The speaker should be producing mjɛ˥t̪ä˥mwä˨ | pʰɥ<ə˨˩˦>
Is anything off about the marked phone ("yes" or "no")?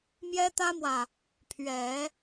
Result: yes